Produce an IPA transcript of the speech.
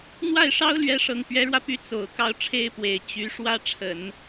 n̪ w a˥˩ ɪ̯ ʂ ɑ˥ ʊ̯ l ɥ ɛ˧˥ ʂ ɤ˨˩ ŋ p ɥ ɛ˧˥ ɻ w ä˧ p y˧˥ t͡s o˨˩ ʊ̯ k ɑ˥˩ ʊ̯ ʈ͡ʂʰ e˥ ɪ̯ p w e˨˩ ɪ̯ t͡ɕ y˧˥ ʂ w ä˥ ʈ͡ʂʰ ə˨˩˦ n

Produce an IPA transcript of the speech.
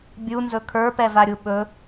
bʲ u n z ɵ kʰ ə˞ p ɛ v a ɾʲ u ɓ ɵ

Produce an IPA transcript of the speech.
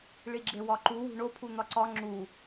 ɭ i ɡ͡ǁ e w ɒ ǃ u w ṳ ɳ o pʰ u n̪ ɒ ǀ ɒ ŋ͡ǁ u

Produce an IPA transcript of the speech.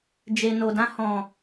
d͡ʒ e˨ n o˨ d ã˧ h ɔ̃˨

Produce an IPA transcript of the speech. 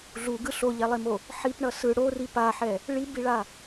ɮ u ɡ ɯ ɬ o ʎ ɛ lˠ e m o | ħ i p ɳ ʌ s ɯ ɽ o r i p a ħ ɛ | ɭ i b i ɭ a

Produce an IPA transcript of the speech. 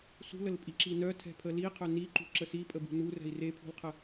s ṳ l ə l pʼ i ǁ i n œ tʰ ɛ̤ pʰ ə l i qʰ œ n i ǃ ṳ ǁ ə s i pʼ ə b ṳ n u r ɛ̤ i̯ r e pʰ ṳ l qʰ ə

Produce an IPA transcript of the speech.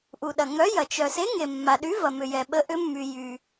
ʔ u˩ ɗ ɐ˩ ŋ œ˨˥ j ɐ˩ t͡ʃ œ˩ s e˨˥ ŋ e˩ mː a˩ ɗ y˨˥ v ɐ˩ m ʏ˩ j ɛ˩ ɓ ə˨˥ ʔ ʏ˨˥ mː y˩ j y˩

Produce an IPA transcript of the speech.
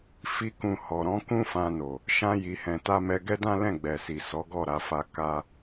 f i˧ k ũ˨ h ɔ˨ ɾ ɔ̃˨˦ k ũ˦ f ã˧ n o˨ | ʃ ã˧ j i˨ h ɛ̃˨ t a˧ m ɛ˧ ɡ ɛ˦ d ã˦ l ɛ̃˦˨ ɡ͡b ɛ˨ s i˨ s ɔ˨˦ ɡ ɔ˦˨ ɾ a˧ f a˧ k a˦

